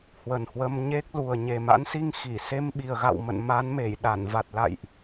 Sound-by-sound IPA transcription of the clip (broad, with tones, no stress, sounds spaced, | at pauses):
h w ə˨˩ n h w ə˧ m ɲ e˦˥ k̚ l u˨˩ ə̯ ɲ e˨˩ m a̰˧˥ n s i˧ ŋ x i˧˩ s e˧ m ɓ i˨˩ ə̯ ɣ a̰˧˨ w m ə̰˧˨ n m a˨˦ n m e˧˩ j ɗ a˧˩ n v a˨˩ t̚ l a̰˧˨ j ʔ